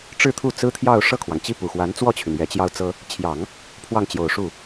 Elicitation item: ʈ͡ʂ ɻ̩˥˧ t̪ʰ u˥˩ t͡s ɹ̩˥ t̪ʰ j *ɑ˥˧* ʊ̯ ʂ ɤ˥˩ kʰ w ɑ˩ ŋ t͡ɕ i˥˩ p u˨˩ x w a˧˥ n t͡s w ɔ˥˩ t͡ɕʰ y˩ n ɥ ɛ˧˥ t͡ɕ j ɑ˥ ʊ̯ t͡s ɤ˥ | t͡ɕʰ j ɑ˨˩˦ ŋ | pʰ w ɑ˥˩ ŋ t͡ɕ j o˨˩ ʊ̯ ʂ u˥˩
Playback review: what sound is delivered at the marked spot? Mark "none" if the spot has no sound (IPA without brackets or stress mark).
ɑ˥˧